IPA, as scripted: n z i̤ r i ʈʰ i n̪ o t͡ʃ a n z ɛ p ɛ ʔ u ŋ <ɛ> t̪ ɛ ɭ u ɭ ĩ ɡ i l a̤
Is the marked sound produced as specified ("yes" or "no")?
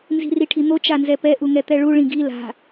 yes